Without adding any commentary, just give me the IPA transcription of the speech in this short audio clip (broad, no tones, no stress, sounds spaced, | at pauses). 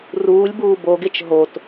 r uː lʲ b uː b o ɡ e t͡ʃ ɦ o t